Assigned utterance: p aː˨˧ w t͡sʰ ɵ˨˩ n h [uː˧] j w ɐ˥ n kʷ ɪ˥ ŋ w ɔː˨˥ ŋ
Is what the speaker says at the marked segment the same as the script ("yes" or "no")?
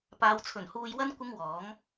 yes